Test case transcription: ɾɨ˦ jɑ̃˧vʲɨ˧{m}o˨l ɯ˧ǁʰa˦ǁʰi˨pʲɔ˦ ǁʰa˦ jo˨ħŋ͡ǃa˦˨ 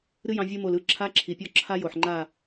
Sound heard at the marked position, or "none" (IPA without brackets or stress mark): m